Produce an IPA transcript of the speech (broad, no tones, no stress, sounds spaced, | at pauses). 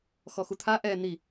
x ɔ x u t̪ʰ a ʔ ɛ n̪ i